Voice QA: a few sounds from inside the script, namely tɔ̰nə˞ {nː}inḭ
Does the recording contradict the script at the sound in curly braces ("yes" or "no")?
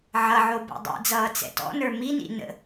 yes